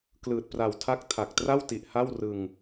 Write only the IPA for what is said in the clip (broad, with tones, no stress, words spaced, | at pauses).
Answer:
klɯː˨˩t̚pra˨˩wtʰa˦˥k̚ tʰa˨˩k̚ tra˥˩wti˨˩ʔ ha˥˩w rɯ˧ŋ